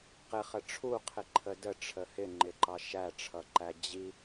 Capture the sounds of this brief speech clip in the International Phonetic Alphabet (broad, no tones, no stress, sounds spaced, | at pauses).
q ɪ χ ə ʈ͡ʂʰ u qʰ ɪ ǃʰ ə d ə ʈ͡ʂʰ ə h ɪ ŋ͡ǃ ɪ ǃ ɑ ʃ æ ʈ͡ʂʰ ʌ ǃ æ d͡ʑ i